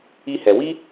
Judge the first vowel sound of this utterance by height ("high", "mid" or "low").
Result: high